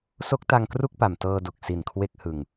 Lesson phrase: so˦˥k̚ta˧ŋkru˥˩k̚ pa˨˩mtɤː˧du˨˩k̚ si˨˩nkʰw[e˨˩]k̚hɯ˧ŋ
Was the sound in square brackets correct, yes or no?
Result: no